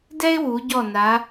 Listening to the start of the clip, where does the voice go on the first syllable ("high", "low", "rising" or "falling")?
high